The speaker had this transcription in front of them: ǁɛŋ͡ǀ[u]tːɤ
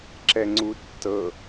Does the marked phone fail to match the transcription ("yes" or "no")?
no